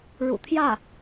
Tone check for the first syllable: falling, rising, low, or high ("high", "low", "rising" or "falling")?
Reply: low